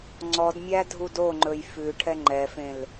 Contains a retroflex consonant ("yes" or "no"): yes